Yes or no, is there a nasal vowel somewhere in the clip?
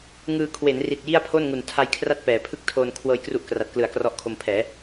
no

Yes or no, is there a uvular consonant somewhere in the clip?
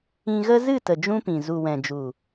no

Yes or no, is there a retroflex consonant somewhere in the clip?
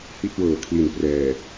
no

